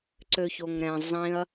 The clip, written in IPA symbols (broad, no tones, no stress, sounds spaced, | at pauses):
ǀ ø ç o ŋ ɾ ɛ̃ zˤ ĩ ɐ̯